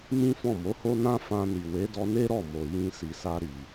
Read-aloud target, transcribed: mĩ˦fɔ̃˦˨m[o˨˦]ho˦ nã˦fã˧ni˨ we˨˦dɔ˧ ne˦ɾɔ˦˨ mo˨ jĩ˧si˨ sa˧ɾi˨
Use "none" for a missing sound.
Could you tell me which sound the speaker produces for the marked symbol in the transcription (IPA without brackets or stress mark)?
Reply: o˨˦